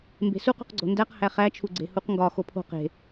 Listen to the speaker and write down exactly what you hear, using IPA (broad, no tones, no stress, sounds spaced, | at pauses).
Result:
m b e̤ s u q ṳ q ɡ͡ǀ o̤ n d æ q h æ χ æ t͡ʃʰ u ɡ͡ǀ e̤ h u q ŋ ɡ ɒ x o pʰ o̤ q e̤